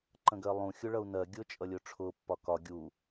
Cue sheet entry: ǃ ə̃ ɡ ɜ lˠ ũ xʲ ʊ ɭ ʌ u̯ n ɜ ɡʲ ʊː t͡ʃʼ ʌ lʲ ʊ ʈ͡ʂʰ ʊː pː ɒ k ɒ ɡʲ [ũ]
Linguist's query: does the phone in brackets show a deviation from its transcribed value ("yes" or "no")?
yes